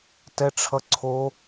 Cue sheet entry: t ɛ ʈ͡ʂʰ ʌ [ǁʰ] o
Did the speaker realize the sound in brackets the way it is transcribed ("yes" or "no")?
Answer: no